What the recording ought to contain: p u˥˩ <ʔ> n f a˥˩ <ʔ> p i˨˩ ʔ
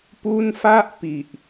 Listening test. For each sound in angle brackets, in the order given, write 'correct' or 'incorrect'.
incorrect: none, correct

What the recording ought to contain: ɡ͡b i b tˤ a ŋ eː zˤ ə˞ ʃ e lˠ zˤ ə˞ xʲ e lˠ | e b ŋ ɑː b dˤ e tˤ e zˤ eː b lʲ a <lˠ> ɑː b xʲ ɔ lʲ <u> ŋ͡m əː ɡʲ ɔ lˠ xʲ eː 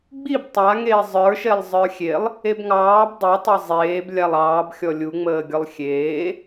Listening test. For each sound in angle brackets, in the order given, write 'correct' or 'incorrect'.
correct, correct

